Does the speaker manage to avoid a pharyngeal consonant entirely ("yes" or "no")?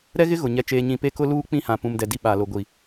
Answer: yes